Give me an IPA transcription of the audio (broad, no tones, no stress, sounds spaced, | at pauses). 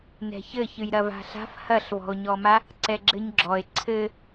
n ɛ̤ ç ɘ ç ɨ j ɾ ɐ v a̤ ɬ a̤ f h ɐ ɬ v ɔ̤ o̯ ɲ ɔ m a | ǀ ɛ ɡ͡ǁ ɘ ɲ ɡ͡ǁ ɔ e̯ ǀʰ ɘ